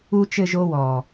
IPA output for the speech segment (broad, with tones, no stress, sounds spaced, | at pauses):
u˨ t͡ʃ ɘ˨ ʒ o˦ w ɔ˨